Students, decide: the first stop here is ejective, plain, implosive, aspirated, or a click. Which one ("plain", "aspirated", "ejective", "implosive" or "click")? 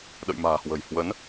implosive